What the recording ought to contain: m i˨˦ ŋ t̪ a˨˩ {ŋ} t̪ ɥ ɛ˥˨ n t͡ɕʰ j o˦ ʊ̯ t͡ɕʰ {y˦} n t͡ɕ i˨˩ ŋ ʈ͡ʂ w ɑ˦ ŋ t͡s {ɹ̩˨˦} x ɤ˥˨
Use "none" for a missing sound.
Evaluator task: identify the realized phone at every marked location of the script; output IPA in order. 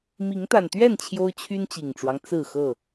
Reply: n, y˦, ɹ̩˥˨

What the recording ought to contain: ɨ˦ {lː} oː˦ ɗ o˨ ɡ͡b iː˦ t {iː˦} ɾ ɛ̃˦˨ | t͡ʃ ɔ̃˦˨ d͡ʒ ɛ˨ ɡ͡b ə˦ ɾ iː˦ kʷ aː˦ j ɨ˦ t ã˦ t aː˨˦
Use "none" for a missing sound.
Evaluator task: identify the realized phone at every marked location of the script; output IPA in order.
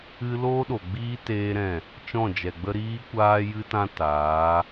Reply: l, eː˦

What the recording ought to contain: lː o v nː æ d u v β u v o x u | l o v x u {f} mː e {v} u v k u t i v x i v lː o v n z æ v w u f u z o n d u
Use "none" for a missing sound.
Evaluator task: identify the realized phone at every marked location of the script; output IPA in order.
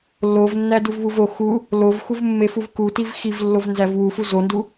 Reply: v, f

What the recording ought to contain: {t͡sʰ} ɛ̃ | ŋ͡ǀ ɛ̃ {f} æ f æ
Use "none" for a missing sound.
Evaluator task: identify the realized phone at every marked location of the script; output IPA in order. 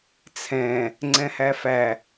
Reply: t͡sʰ, h

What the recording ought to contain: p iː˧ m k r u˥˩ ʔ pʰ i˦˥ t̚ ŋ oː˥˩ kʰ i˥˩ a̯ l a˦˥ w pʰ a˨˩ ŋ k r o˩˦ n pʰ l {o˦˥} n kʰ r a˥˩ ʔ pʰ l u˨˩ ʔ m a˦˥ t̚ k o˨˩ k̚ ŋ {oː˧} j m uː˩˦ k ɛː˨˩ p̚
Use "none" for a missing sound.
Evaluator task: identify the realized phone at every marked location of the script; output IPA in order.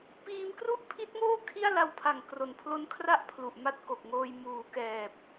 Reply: o˦˥, oː˧

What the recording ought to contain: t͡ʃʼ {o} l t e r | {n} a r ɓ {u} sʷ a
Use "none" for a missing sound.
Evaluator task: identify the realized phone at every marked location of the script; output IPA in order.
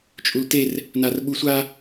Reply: u, n, u

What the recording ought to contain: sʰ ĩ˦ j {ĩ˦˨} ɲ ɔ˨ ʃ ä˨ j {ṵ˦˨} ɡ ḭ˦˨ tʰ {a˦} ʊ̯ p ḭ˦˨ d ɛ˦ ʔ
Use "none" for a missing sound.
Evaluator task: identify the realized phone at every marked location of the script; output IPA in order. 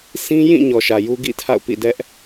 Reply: ĩ˦˨, u˦, a̰˦˨

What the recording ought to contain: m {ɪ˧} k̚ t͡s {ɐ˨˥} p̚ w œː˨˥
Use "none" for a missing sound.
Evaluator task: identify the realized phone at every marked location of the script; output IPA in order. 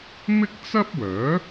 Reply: ɪ˥, ɐ˥

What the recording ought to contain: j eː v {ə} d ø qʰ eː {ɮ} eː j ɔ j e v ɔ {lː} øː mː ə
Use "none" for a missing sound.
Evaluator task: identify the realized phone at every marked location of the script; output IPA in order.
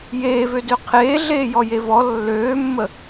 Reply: ø, ɮ, lː

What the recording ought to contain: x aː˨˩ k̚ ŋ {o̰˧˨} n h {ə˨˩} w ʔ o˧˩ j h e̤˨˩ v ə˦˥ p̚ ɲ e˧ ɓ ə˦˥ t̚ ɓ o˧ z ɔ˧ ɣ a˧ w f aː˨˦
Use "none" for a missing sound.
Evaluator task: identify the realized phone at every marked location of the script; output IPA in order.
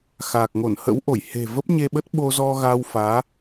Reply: o˧˩, ə̰˧˥

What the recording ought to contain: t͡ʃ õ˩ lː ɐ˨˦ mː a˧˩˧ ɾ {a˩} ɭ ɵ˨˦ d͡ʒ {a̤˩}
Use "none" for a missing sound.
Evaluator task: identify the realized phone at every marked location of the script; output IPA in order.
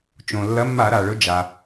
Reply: a˩, a˩

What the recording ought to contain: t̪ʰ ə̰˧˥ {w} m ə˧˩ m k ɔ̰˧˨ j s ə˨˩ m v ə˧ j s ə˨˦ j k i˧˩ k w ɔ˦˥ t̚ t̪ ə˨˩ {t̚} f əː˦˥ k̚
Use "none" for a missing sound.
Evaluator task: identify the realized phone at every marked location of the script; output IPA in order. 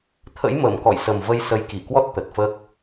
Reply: j, t̚

